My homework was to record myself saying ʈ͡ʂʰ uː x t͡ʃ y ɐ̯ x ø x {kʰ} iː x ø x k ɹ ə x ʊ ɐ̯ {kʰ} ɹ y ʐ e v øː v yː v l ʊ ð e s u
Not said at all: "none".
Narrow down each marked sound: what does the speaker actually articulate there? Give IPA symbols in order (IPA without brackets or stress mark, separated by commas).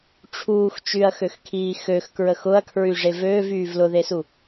kʰ, kʰ